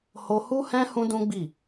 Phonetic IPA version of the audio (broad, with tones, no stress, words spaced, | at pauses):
ho˧hu˦hɛ̃˦ hũ˦dũ˦ɡ͡bi˦˨